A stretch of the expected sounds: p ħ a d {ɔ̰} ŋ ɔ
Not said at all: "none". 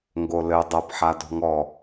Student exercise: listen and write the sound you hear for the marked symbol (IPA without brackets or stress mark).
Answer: ɔ̤